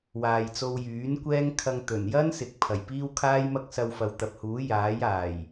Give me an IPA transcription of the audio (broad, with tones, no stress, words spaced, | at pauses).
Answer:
waː˨jt͡so˧w jyː˨˥n kʷɛː˥ŋkʰɐ˧ŋ t̪ɵ˨˩njɐ˥nsɪ˨k̚ pʰɐ˨˩jpiː˥wkʰaː˥jmɐ˥k̚ sɐ˧wfɐ˨˧w t̪ɐ˨p̚huː˨˥ jaː˨˥jaː˨˩j